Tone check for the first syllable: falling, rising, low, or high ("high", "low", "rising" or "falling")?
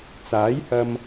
rising